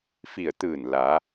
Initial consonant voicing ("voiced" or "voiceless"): voiceless